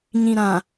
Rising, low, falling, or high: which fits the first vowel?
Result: low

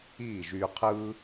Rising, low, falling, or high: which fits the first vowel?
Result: falling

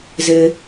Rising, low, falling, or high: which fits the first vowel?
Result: high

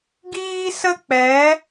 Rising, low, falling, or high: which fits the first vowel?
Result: high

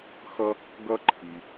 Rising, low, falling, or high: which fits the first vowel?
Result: high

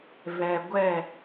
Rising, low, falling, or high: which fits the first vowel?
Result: low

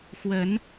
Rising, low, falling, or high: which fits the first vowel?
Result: rising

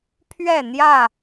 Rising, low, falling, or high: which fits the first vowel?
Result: falling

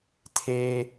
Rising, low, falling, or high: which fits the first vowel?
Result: high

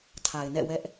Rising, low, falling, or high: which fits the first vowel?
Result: low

